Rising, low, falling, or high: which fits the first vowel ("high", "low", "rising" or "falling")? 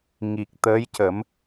low